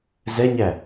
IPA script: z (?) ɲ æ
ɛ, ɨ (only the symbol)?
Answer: ɛ